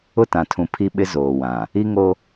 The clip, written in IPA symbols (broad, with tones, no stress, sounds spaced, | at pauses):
ʊ˦˨ t ã˨ tʰ ũ˨ pʰ i˦ ɓ ɪ˦ z oː˨ w ã˨ | i˦ ŋ o˦